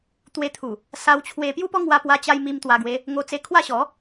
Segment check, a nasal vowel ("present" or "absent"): absent